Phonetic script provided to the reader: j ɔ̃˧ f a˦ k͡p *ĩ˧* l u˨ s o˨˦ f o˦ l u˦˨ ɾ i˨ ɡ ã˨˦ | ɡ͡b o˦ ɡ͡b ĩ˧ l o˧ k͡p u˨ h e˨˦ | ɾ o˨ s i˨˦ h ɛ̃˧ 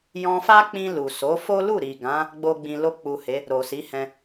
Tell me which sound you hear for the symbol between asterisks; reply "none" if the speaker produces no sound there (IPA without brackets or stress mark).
ĩ˧